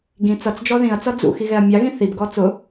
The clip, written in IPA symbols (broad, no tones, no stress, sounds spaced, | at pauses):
ɡ ĩ t͡s ʌ t͡s d͡ʒ ɔ ð ĩ ɐ̯ t͡s ʌ d͡z ṵ x i ɣ ɛ ɐ̯ mʲ ɑ ɣ ĩ θ i b ɡ ɔ t͡s ʊ